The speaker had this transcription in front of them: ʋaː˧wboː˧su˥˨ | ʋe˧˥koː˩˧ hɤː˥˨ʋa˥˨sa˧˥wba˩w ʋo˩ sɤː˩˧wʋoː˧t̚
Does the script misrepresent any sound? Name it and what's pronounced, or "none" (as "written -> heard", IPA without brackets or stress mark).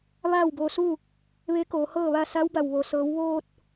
aː˧ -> aː˥˨